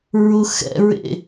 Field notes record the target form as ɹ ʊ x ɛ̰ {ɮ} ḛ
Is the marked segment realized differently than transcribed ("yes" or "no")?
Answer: yes